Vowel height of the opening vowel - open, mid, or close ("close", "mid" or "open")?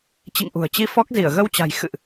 close